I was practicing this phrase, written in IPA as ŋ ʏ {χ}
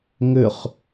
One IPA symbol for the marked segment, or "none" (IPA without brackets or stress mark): χ